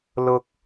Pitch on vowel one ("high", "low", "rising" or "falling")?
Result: high